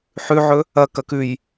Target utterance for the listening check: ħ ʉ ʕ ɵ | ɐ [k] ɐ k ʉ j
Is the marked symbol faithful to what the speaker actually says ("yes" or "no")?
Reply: yes